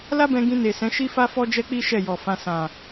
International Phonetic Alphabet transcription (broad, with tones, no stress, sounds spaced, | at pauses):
l a˦ b ɛ̃˧ ɡ ĩ˧ n e˨ s ɛ̃˨˦ ʃ i˦ f a˦ f ɔ˦ d͡ʒ ɛ˦ k͡p i˦ ʃ ɛ˦˨ j ɔ˨ f ã˧ s ã˨